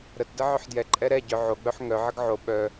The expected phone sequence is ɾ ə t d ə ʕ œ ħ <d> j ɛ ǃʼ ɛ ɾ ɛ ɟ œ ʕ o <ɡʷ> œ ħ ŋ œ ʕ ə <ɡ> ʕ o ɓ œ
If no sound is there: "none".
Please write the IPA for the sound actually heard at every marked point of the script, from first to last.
d, ɡ͡b, ɡ

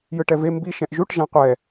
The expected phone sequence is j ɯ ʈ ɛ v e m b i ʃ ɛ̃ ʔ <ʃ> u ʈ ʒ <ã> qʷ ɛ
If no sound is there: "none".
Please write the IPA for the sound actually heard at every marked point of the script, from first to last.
ʒ, ã

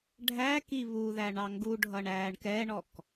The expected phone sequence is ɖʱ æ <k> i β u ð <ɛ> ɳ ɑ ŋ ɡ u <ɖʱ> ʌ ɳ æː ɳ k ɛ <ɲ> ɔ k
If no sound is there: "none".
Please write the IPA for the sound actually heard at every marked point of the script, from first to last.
k, æ, ɖʱ, ɳ

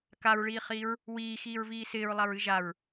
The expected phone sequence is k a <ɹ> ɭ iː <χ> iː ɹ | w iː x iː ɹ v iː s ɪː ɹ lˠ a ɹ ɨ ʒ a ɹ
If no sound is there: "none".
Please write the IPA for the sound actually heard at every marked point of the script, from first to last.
ɹ, χ

